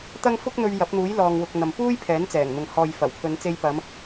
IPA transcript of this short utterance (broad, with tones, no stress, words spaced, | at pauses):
t̪ɐ˥ŋ fʊ˥k̚n̪ɵ˧ɥ jɐ˨˥p̚n̪uː˨˥j lɔː˨ŋwʊ˨k̚ n̪ɐ˨mpuː˥j pʰɛː˨˥nt͡sɛː˨˩ŋn̪ʊ˨ŋ hɔː˨j fɐ˨˩wpʰɵ˨˧nt͡se˧j pɐ˨˧m